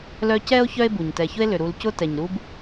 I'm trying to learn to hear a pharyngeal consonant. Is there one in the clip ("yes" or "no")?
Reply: no